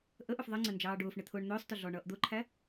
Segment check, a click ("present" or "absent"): present